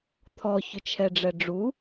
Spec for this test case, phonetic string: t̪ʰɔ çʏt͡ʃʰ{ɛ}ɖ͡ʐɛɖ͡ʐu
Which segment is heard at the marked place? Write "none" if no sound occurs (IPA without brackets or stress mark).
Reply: ɛ